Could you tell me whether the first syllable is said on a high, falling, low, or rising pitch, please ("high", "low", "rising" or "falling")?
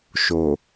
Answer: low